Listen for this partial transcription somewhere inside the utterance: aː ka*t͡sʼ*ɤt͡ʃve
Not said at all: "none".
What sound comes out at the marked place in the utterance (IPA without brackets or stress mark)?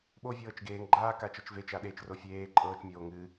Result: t͡ʃ